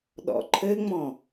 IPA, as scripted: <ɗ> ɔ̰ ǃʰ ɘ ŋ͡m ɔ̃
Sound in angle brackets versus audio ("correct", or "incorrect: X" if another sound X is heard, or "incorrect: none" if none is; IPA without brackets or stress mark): correct